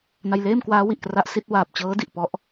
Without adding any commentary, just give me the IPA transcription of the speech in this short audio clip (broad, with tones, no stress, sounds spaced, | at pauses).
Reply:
n a˧ j l eː˥˩ m k w aː˦˥ w i˨˩ ʔ k r a˦˥ ʔ s i˦˥ t̚ w aː˨˩ p̚ t͡ɕ ɤː˦˥ d i˨˩ ʔ p ɔ˦˥ ʔ